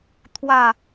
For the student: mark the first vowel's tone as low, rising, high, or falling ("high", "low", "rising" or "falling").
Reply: falling